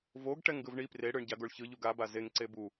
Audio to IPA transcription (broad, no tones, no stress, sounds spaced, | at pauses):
v o ɡ ʈ ɛ ŋ ɡ ɯ v ɳ i p r e ɽ ɯ ɳ ɟ a ɡ o ɭ ç ɯ ʎ u ɡ a b a z e ŋ ǀ e b u